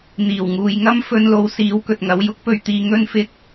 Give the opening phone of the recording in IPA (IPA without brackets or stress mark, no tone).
n̪